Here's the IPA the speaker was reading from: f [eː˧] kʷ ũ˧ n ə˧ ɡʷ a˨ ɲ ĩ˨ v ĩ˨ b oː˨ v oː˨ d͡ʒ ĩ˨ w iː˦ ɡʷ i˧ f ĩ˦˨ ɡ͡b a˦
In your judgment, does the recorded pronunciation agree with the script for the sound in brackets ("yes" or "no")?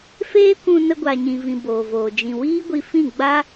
no